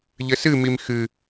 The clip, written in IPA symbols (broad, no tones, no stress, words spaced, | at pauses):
ʎɘsɨmim xɨ